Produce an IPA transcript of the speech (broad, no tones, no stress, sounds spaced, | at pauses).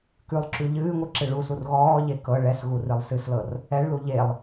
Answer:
k ʉ lˠ ǁ ʉ ʎ ɨː ŋʷ ɨ ǁ ɨ ɭ u s u r ɣ ɔː ʎ e k ɤ ɭ ɛ s ɣ u r ɨ lˠ s ɨ s l ɤ r | ɛ ɭ l u ʎ e lˠ